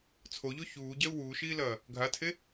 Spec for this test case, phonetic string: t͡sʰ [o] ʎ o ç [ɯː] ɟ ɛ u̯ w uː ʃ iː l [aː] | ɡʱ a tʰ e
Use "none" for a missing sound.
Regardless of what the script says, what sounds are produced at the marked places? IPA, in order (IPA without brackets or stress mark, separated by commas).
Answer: o, uː, ɐː